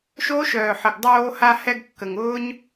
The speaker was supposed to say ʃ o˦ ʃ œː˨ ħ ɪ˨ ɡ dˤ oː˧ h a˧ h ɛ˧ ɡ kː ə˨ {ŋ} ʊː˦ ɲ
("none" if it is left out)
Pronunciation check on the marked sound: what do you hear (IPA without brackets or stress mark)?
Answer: ŋ